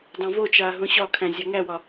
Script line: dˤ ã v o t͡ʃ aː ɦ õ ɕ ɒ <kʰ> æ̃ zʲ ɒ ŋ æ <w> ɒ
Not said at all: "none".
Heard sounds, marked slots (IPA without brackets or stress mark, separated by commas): kʰ, w